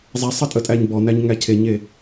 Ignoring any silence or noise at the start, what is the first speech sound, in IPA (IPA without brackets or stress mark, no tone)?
zˤ